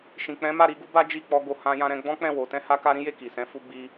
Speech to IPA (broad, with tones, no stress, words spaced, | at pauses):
ʃĩ˨k͡pɛ̃˨˦ma˦˨ ɾi˧ɡu˦ ba˦ d͡ʒi˦˨k͡pɔ˧ ɡo˧hã˦jã˦ ɾɛ̃˧ɡ͡bɔ̃˦k͡pɛ̃˦˨ wo˨˦ tɛ̃˦ha˦ka˦ ɾĩ˦je˦˨ ki˨sɛ̃˨˦ fu˦ɡ͡bi˦